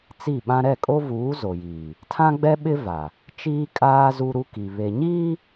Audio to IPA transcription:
t͡s i˦˨ ɓ ã˦ ɾ ɛ˦˨ kʼ o˦ v uː˨˦ z o˨ j iː˨ | tʰ ã˦ ɡ͡b ɛ˦ ɓ ɪ˦ v a˨ | t͡ʃ iː˦ kʼ aː˦ z u˦ ɾ u˦ k i˨ β e˨ ɲ iː˦

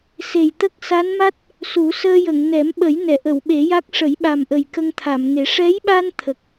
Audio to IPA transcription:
s e˨˩ j t̪ ə˦˥ k̚ s a˧˥ n m a˦˥ t̚ | s u˨˩˦ s əː˧ j ə˨˩˨ ŋ n ɛ˨˩˦ m ɓ ə˨˩˦ j n ɛ˨˩˨ ʔ ə˨˩˨ w ɓ e˨˩˦ j a˦˥ k̚ ʂ ə˨˩˦ j ɓ a˨˩ m ʔ ə˨˩ j k ə˧ ŋ t̪ʰ a˨˩˨ m ŋ e˨˩˦ ʂ ɛ˧˥ j ɓ a˧ n t̪ʰ ə˨˩ k̚

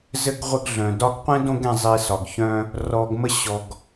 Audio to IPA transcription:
z ɘ˥ ɡ ʁʷ ɘ˦ ɡ ɮ œ̃˩ d ɒ˦ ɡ qʷ ɛ̃˥ d õ˦ ɡ ɛ̃˨ zˤ i˨ s ɒ˩ ɡ ç œ̃˦ | r ɔ˨ ɡ m ə˦ ɕ ɔ˨ ɡ

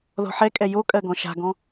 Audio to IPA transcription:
ð ɔ̤ ħ ɛ kʼ ɛ j o kʼ ɜ ɡ ɔ̃ ʃ a̤ ɡ ɔ̃

